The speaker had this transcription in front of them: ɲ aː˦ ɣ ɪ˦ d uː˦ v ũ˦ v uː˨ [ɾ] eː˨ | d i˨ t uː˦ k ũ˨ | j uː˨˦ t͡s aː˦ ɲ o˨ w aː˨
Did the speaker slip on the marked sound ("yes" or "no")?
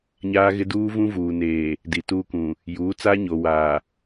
yes